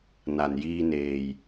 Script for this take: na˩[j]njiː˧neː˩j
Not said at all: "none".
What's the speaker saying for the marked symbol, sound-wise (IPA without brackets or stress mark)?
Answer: none